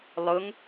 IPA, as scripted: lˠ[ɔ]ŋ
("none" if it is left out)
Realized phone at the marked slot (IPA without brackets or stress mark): ʊ